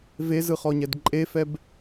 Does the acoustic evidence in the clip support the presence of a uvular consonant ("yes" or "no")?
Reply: yes